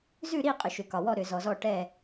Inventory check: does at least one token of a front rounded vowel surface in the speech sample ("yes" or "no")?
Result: yes